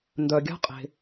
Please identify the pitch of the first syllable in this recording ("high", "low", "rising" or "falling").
low